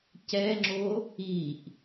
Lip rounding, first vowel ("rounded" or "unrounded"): unrounded